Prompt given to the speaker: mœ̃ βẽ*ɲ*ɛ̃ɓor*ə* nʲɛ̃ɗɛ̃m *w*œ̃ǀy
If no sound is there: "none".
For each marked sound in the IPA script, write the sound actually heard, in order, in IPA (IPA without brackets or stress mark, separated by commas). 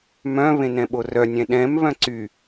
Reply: n, œ, β